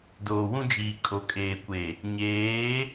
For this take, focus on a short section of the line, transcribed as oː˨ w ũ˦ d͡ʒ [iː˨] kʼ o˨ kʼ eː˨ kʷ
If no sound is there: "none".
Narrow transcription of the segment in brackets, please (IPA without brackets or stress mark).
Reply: iː˨